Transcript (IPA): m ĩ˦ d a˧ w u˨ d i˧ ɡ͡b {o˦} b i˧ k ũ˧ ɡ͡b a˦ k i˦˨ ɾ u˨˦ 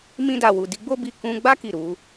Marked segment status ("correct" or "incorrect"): correct